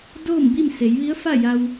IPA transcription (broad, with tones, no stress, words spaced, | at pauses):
doː˥˨mbi˥˨m se˩˧jʋi˧˥ə̯fa˥˨ ja˧w